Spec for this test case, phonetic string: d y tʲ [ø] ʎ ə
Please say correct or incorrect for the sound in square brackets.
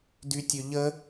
correct